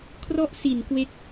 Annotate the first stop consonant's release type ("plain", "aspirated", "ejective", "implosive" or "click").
aspirated